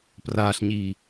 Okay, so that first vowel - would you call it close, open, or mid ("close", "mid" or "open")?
open